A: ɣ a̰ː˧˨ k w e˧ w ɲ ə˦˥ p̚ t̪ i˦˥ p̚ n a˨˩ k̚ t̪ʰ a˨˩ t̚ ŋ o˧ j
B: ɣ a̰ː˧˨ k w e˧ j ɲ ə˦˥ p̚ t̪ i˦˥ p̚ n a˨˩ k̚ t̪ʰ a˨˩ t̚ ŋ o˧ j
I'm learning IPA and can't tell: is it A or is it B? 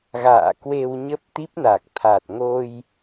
A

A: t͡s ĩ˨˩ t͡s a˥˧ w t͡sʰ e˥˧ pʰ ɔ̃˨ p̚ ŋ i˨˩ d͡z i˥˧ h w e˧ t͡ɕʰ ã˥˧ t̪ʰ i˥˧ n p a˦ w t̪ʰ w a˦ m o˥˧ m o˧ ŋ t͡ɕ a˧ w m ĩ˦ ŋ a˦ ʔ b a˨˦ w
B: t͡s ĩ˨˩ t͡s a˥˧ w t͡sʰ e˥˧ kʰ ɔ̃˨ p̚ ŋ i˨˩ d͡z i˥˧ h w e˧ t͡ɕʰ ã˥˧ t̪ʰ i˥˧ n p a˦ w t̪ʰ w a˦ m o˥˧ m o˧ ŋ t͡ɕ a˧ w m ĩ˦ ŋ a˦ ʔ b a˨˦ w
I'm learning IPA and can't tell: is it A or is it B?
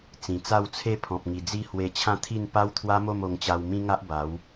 A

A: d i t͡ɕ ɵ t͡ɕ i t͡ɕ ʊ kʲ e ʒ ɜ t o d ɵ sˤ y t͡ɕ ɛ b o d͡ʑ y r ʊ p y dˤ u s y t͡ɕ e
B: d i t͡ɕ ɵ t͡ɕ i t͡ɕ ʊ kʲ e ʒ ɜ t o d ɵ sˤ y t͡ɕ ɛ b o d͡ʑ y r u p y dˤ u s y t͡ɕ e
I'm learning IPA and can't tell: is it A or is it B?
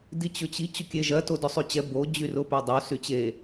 A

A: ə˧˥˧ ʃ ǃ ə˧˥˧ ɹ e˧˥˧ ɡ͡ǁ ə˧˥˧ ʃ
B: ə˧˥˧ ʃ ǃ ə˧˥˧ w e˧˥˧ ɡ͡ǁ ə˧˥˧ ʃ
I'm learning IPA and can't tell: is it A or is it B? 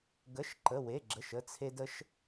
B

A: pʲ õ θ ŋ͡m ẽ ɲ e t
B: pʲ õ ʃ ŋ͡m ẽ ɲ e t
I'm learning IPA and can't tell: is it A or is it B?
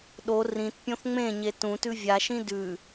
A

